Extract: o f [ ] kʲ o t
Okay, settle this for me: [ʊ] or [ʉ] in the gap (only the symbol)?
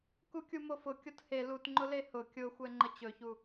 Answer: ʊ